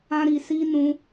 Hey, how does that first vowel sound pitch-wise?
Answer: high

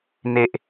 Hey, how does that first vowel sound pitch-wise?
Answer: high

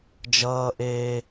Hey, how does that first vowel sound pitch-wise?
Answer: high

